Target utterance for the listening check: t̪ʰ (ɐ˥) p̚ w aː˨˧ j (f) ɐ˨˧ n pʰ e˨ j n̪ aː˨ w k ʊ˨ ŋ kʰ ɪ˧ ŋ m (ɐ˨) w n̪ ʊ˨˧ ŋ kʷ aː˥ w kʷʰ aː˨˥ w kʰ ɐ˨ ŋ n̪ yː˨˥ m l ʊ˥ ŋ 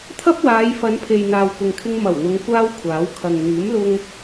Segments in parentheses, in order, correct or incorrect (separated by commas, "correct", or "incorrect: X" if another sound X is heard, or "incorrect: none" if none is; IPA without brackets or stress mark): correct, correct, incorrect: ɐ˨˩